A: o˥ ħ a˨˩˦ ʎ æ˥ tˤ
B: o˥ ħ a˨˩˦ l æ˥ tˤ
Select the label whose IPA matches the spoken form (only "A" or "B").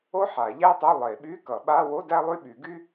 A